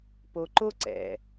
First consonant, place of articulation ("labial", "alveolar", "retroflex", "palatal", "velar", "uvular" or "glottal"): labial